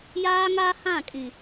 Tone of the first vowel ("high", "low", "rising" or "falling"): high